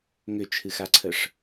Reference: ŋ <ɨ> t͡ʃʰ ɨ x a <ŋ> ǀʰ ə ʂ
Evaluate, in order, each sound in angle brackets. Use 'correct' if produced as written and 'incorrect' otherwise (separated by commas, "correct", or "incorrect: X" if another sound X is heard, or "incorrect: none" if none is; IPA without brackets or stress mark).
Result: incorrect: ʏ, incorrect: none